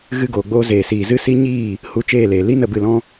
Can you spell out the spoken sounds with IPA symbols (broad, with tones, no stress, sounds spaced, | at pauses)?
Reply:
ɣ ɨ˧ ɡ oː˨ ɡ͡b oː˧ z eː˨ s iː˨ z ɨ˧ s i˦ ɲ iː˦˨ | h u˧ t͡ʃ eː˦˨ l eː˨ l i˦ n ə˦˨ b ɨ˦˨ l ɔ̃˦